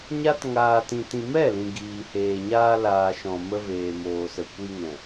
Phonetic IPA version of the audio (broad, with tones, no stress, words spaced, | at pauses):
ɲa˦t ŋaː˧tĩ˧tĩ˧ mɛ˦˨lĩ˨ ɡiː˨heː˨ ɲaː˧ laː˨ʃɔ̃˨mə˧ veː˨moː˨sə˨ kʷi˧ŋɛ̃˨